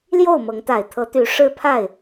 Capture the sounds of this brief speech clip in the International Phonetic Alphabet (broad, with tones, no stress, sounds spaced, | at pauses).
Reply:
l j o˥˨ ʊ̯ m ɤ˨˦ ŋ t̪ a˨˩ ɪ̯ t̪ʰ ɤ˨˦ t̪ y˨˦ ʂ ɻ̩˦ pʰ a˥˨ ɪ̯